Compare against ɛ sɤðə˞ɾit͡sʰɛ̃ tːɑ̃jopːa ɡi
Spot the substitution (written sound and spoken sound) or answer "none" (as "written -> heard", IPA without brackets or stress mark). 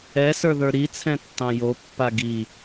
ɤ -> ə˞